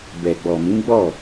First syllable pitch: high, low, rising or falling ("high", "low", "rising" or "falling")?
low